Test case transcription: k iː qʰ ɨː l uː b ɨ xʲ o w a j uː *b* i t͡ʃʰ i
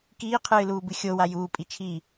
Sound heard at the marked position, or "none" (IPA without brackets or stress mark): pʼ